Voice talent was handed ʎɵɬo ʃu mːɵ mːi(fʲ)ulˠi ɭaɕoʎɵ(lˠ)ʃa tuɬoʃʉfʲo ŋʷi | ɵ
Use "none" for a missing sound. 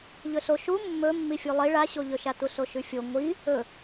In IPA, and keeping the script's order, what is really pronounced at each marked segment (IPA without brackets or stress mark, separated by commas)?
fʲ, none